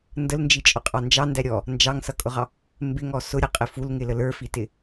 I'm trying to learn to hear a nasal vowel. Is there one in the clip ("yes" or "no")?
no